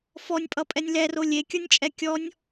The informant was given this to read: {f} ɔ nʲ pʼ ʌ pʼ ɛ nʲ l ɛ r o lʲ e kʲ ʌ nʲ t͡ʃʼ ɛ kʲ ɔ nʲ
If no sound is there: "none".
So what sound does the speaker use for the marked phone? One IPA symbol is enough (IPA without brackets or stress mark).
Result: f